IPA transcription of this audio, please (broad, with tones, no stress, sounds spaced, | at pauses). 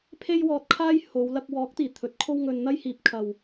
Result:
pʰ e˥ j w ɔː˧ t̚ kʰ aː˥ j h o˨˧ w l ɐ˧ k̚ w ɔː˨˥ k̚ t̪ iː˨˩ t̪ʰ ɵ˨˥ t̚ kʰ o˥ w ŋ ɵ˧ n n̪ ɐ˥ j h iː˨ p̚ kʰ ɐ˨ w